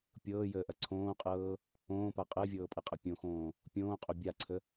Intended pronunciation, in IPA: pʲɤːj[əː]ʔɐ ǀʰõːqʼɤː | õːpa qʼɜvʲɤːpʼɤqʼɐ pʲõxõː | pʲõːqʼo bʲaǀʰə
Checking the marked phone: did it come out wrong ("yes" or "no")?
no